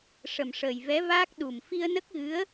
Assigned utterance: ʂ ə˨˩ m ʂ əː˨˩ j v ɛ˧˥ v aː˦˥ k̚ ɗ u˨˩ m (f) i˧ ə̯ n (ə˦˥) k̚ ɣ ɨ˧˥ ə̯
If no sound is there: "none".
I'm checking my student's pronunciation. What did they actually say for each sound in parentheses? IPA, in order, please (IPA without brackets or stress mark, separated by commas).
f, ə˦˥